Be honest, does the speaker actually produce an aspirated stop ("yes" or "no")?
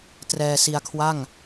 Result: yes